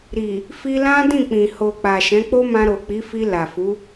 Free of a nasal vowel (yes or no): no